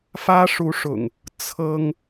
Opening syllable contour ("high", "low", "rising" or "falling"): high